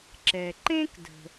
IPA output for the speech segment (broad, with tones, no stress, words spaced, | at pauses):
ǁɛ˨ ǃẽ˦k də̤˧